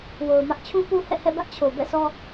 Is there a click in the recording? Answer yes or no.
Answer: no